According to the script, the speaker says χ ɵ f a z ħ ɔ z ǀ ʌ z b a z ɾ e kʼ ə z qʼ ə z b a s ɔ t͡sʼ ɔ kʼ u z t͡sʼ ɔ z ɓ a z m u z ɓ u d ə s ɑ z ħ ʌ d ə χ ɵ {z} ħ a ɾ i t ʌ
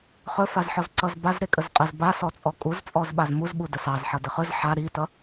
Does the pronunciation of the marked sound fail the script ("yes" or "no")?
no